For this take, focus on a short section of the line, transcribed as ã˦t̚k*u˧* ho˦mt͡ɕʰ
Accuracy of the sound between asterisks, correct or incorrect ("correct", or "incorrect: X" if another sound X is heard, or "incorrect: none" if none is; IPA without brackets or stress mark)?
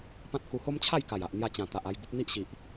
correct